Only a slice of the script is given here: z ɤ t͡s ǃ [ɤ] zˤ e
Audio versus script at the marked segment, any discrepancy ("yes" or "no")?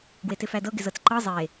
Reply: no